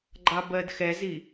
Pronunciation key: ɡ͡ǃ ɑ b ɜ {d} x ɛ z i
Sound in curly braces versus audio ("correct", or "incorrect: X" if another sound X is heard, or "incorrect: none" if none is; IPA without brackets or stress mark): correct